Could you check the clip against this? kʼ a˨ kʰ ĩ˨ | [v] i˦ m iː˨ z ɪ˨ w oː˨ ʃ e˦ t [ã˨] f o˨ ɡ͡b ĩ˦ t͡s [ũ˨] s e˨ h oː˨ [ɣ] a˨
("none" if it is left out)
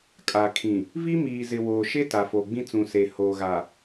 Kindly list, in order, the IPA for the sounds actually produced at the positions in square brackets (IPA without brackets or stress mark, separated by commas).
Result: v, a˨, ũ˨, ɣ